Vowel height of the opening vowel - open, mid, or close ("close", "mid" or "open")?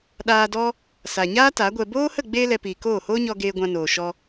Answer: open